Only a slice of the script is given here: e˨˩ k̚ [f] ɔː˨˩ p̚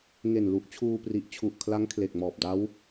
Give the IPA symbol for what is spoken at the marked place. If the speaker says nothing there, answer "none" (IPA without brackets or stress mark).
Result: m